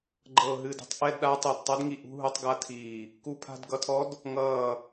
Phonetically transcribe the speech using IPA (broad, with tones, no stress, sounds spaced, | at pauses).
ɡ͡ǃ ɤ˧˩ ɦ ɨ˧˩ d ɛ̤˧˥ tˤ ʔ ɛ˧˥˧ d ɗ a˧˥ tˤ ɛ˧˩ d tˤ ʌ˧˥ d ŋ i˧˩ ʔ ṳ˧˥˧ ɦ u˧˥ tˤ ɡ a˧˥ tʰ iː˧˩ | k u˧˥ pʰ a̤˧˥˧ d ɡ ʌ˧˥ tʰ ɔ˧˥ d | ŋ ʌː˧˩